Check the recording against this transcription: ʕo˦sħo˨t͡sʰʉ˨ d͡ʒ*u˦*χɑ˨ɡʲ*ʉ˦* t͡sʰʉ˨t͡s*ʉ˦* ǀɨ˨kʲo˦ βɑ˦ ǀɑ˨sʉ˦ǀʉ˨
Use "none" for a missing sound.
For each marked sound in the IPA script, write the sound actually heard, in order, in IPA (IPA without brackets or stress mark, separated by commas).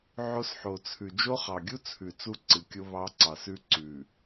o˦, u˦, u˦